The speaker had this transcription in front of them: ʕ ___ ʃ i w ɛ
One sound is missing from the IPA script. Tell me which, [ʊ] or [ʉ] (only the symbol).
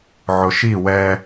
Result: ʊ